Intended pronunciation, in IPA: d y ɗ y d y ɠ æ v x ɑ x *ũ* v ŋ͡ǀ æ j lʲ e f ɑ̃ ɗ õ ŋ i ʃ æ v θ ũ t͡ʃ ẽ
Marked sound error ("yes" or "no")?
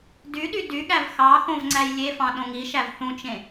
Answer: yes